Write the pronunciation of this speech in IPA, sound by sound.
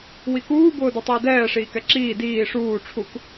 w i k uː b ʊː d u tˤ ʊː d ɛː ʂ iː k ɛ ǁ iː d iː ʂ uː ʈ͡ʂʰ u k

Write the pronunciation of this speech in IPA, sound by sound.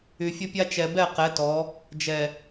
y˨ fʲ ə˦ pʲ a˦ t͡ʃ ɛ˨ b ɛ˦˨ q ɛ˨˦ t ɔ˨˦ | d͡ʒ ɛ˨

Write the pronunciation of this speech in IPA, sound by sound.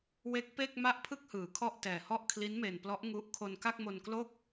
w e˦˥ k̚ p e˥˩ k̚ m a˥˩ ʔ pʰ ɯ˥˩ k̚ h ɯː˩˦ kʰ ɔ˥˩ ʔ t ɛː˨˩ h ɔ˥˩ ʔ kʰ l i˦˥ n m e˨˩ n p l ɔ˦˥ ʔ ŋ u˦˥ ʔ kʰ o˧ n k a˥˩ k̚ m o˧ n k l o˥˩ k̚

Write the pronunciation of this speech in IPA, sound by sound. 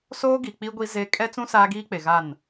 s oː˦ ɡ i˨ k͡p i˦ ɡʷ i˦ z e˦ kʼ ɛ˦ t͡s ũ˦ s aː˦ ɡ iː˦ k͡p e˨ ɣ a˦˨ n

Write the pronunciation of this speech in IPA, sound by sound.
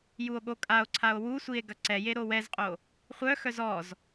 j u o̯ ɠ o kʼ a o̯ ǀʰ a o̯ w u sʷ i e̯ ɡ ɐ ǀ ɛ j e ɾ o w ɛ z qʼ o | χʷ œ x œ z ɔ z

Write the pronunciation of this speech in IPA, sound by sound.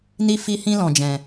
n i˧ f i˧ h ĩ˧ l ɔ̃˨ d͡ʒ ɛ̃˨

